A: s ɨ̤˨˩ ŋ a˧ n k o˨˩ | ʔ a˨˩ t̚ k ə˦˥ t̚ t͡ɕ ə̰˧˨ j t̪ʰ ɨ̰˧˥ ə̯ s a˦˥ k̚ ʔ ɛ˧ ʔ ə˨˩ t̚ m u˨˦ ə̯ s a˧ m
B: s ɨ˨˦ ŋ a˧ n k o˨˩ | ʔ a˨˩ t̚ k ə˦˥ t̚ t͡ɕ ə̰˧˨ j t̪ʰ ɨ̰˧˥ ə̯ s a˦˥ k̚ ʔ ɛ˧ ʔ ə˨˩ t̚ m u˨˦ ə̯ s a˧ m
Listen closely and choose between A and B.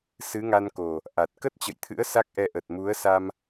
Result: B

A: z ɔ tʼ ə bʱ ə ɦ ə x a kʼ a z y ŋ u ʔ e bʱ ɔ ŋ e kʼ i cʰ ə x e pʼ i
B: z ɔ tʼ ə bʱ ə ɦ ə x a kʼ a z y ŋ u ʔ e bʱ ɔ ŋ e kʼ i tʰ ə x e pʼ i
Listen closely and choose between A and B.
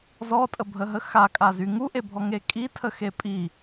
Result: B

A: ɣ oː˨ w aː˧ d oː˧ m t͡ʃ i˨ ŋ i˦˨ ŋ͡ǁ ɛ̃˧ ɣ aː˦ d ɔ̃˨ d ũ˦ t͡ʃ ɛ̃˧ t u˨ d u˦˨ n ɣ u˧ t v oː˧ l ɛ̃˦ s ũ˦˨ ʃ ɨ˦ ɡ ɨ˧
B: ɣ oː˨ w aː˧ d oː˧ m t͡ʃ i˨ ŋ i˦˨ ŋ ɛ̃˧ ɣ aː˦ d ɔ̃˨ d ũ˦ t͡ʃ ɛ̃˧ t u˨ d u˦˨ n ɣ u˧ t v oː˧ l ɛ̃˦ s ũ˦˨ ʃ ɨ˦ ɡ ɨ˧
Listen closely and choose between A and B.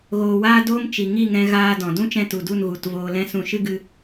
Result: B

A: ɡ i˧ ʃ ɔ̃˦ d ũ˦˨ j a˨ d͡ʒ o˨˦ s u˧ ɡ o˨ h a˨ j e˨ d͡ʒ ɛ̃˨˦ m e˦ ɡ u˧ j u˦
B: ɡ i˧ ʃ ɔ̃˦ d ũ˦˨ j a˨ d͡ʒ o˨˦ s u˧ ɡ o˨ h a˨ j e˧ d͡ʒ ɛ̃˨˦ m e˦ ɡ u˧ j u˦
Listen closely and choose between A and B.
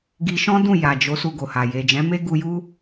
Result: A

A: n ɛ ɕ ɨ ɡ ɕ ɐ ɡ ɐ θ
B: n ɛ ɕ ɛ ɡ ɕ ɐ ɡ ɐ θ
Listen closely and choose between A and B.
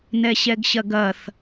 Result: B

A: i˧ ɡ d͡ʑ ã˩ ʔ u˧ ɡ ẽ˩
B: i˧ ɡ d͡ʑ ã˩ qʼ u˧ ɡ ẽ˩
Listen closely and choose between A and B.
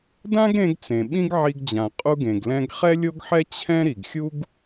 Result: B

